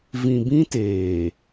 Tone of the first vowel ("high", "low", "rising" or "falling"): low